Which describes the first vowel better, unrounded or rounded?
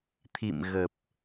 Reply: unrounded